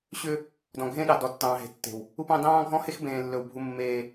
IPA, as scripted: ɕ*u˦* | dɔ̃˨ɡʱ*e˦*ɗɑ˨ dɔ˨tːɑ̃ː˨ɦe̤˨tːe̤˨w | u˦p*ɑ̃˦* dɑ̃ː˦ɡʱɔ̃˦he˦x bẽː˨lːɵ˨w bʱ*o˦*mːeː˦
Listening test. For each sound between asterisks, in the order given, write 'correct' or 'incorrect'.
incorrect, incorrect, correct, incorrect

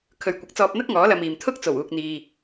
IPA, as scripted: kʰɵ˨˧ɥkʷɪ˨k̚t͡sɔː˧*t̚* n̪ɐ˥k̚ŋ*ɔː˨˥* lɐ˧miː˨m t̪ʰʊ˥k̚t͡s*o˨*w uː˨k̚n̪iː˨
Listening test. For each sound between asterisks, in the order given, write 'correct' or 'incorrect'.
incorrect, correct, incorrect

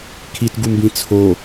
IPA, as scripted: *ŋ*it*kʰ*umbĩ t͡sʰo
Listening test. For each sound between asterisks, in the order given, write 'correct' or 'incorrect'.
incorrect, incorrect

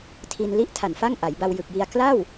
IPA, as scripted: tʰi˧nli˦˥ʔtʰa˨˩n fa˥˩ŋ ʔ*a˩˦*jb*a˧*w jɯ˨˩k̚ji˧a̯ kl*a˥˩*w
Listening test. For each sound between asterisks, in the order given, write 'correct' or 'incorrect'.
correct, correct, correct

